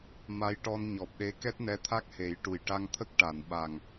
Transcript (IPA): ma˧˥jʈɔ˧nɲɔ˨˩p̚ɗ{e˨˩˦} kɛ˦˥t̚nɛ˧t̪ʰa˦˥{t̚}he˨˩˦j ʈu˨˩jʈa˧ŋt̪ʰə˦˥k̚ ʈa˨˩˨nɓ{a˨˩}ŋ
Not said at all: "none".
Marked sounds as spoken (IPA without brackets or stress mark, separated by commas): e˧˥, k̚, a˨˩